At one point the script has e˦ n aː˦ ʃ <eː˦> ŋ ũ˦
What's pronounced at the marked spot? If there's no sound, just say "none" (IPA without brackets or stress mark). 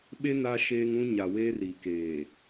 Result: eː˦